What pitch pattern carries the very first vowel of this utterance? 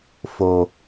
low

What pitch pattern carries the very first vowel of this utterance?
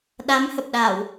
rising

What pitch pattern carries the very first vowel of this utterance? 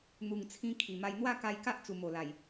low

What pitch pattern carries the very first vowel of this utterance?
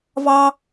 high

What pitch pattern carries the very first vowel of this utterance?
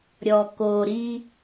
low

